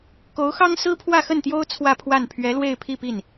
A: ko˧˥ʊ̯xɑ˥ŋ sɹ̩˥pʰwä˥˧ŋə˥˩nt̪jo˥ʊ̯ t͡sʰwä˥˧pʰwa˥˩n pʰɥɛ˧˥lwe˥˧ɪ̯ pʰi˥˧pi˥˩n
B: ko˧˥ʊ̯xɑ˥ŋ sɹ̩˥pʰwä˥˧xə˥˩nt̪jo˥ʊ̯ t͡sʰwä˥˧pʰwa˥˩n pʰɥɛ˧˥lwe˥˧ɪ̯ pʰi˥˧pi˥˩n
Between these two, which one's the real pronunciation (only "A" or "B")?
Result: B